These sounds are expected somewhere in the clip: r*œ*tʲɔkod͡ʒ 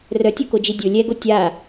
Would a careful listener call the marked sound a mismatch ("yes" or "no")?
no